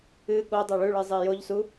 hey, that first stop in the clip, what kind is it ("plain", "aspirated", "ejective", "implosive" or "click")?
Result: implosive